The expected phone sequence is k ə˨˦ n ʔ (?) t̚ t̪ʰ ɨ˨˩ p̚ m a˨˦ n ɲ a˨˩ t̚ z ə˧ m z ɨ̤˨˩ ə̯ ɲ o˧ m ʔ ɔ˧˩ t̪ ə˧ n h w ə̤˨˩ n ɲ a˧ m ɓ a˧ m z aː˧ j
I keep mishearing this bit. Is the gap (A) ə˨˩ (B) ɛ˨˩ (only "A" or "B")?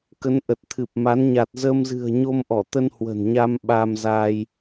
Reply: A